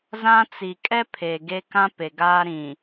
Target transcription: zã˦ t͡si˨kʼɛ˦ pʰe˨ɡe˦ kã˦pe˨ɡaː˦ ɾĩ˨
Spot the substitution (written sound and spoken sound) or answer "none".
none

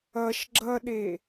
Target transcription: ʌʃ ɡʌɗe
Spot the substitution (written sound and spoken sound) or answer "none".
ɡ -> ɡ͡ǁ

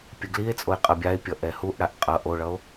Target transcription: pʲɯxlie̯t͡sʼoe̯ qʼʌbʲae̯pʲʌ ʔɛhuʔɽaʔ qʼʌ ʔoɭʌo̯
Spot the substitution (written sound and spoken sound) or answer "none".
x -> ɡ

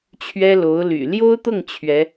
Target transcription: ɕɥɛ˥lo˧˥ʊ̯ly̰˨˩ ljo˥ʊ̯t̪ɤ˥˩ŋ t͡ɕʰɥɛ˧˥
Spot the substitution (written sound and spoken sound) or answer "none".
ɕ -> t͡ɕʰ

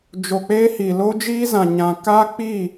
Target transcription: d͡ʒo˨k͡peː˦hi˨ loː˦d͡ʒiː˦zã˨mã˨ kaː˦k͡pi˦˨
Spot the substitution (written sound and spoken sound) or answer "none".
m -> ɲ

